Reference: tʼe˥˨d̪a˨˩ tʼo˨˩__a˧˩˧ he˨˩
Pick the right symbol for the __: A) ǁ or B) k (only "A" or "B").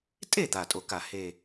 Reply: B